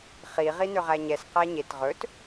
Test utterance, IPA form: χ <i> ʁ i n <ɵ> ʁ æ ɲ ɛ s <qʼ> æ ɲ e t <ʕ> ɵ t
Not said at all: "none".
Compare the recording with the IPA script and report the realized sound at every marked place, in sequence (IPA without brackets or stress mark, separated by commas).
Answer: i, ø, q, ʁ